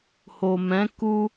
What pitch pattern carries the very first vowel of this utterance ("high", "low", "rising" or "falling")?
low